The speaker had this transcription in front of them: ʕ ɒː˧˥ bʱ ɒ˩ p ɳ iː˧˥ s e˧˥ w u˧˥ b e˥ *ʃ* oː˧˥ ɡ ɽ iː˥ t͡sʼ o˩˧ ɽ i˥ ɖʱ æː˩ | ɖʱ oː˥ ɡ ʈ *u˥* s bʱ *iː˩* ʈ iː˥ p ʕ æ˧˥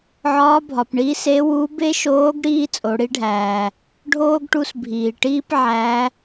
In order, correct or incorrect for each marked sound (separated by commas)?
correct, incorrect, correct